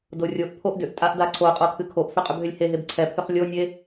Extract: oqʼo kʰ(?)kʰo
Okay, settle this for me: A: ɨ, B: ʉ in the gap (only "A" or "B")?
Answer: A